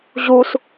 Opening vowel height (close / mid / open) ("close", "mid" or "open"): close